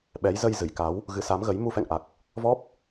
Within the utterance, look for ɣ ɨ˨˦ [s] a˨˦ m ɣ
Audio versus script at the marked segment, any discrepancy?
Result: no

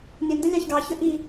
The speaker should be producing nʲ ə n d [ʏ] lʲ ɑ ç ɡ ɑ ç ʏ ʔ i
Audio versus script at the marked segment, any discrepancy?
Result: yes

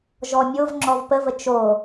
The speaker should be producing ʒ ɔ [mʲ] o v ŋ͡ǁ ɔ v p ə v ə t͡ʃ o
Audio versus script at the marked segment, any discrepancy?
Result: no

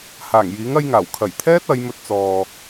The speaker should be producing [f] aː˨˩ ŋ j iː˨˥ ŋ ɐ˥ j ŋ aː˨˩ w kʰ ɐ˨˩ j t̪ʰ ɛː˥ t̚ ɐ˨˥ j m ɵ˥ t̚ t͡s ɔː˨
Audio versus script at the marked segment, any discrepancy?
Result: yes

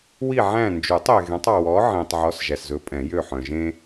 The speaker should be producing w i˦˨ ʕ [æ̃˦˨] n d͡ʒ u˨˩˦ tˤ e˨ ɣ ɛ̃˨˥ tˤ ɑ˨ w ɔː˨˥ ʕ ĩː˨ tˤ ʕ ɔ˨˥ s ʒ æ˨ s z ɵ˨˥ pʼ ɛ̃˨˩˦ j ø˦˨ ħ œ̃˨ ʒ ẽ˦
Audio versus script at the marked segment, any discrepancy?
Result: no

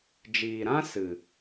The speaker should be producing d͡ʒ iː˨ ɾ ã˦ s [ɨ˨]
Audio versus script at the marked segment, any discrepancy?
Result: no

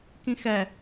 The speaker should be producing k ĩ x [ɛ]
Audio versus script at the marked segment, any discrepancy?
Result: no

